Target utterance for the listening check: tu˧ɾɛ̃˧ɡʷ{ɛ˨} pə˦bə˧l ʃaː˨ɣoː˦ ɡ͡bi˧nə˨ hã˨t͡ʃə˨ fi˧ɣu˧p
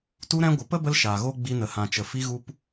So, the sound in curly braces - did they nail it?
no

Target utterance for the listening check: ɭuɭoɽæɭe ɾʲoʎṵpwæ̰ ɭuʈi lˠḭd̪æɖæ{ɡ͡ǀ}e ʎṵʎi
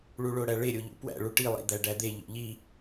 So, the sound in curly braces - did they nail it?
no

